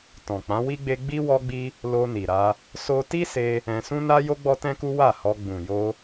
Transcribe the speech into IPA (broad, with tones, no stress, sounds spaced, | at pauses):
t ɔ̃˨ k͡p ã˨˦ w i˦ ɡ͡b e˦ ɡ͡b i˦ w ɔ˦ ɡ͡b i˦ | l o˧ n i˨ ɾ a˧ | s o˧ t i˦ s e˧ | ɛ̃˧ s ũ˦ n a˦ j o˦ ɡ͡b ɔ˦ t ɛ̃˦ k u˦ w a˦˨ h ɔ˧ ɡ͡b ũ˨ j o˧